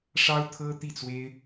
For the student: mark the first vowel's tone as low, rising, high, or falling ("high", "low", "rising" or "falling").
high